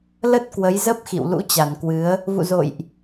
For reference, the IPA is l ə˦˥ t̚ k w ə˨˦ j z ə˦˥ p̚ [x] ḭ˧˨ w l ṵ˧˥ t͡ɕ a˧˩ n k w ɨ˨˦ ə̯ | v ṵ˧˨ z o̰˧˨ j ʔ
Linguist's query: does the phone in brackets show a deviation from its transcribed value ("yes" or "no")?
no